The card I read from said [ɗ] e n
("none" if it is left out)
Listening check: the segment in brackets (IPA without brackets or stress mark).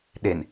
ɗ